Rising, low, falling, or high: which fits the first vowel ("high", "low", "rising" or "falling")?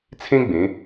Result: high